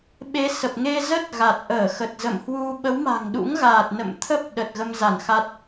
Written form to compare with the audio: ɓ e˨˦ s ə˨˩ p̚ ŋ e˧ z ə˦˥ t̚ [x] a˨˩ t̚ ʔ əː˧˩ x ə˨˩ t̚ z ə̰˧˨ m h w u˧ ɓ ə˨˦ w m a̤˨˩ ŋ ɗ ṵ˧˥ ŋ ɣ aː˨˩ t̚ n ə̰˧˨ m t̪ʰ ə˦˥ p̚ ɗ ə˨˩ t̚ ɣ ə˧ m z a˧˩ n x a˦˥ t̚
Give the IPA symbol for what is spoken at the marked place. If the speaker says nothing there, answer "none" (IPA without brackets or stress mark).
ɣ